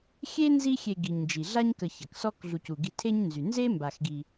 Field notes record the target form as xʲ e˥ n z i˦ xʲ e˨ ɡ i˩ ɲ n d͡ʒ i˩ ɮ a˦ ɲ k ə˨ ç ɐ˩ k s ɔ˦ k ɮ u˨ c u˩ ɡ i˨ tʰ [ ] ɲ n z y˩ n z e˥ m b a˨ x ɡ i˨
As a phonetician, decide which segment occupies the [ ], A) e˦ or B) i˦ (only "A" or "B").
A